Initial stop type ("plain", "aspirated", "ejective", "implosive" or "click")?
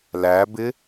plain